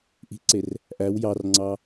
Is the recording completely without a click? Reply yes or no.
no